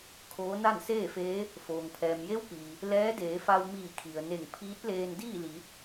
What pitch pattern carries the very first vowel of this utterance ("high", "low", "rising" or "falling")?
rising